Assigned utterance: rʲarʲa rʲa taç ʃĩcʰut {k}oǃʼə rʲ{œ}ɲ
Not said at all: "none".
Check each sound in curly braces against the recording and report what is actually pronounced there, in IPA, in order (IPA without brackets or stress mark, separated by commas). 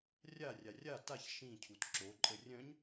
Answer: ǁ, œ̃